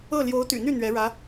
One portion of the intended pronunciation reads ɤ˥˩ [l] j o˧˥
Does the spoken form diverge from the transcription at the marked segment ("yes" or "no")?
no